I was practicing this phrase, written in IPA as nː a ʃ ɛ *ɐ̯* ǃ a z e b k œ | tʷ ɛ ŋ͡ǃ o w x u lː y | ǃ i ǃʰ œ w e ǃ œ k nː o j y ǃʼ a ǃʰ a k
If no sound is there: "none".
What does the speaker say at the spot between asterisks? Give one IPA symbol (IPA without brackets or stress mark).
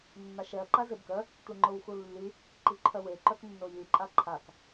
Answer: ɐ̯